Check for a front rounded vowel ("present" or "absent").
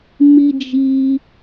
absent